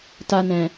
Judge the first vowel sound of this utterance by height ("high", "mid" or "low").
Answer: low